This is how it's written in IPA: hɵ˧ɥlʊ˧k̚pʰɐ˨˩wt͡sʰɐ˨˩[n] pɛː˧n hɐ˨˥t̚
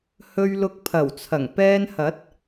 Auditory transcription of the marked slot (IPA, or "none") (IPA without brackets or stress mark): ŋ